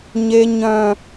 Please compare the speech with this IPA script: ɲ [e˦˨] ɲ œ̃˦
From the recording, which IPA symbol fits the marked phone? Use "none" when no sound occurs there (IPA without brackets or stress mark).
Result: e˦